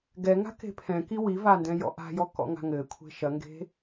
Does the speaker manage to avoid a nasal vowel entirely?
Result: no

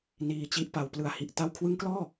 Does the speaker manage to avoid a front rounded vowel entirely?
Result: yes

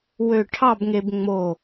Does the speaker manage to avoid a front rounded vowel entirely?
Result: no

